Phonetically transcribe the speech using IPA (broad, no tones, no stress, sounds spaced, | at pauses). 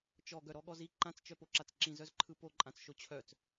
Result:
t͡ʃ ɔ ɡ œ ɾ ɔ ɠ ɔ z i ǃ ã t͡s t͡ʃ œ p o ǁ a t͡s ǁ ĩ z œ z ǃʰ ɯ p o ǃʼ ã t͡s ʃ o t͡ɕʰ œ t͡s